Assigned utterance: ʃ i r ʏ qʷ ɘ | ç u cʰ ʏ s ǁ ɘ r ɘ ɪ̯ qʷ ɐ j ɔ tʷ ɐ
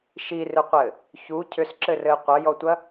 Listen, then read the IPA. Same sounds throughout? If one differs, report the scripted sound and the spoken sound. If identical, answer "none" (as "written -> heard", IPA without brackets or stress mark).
none